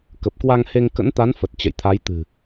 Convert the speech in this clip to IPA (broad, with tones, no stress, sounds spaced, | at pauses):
k ə˨˩ p̚ k w a˧ ŋ h e˧ ŋ k ə̰˧˥ n t̪ a˨˦ n f ə˨˩ t̚ t͡ɕ ə̰˧˨ j t̪ʰ a˨˦ j t̪ ɨ̤˨˩